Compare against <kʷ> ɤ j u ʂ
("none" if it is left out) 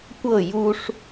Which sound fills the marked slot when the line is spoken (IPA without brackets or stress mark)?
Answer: kʷ